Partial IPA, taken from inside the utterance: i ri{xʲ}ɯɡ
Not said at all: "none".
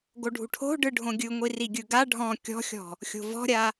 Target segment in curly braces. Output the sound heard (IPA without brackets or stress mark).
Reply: ɡʲ